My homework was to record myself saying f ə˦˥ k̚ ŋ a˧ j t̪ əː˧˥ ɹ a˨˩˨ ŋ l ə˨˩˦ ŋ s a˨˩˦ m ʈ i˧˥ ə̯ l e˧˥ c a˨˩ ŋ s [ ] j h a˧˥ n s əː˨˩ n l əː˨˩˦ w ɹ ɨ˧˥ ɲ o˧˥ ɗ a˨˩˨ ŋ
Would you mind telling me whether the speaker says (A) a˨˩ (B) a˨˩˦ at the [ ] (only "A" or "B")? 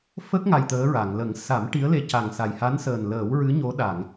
A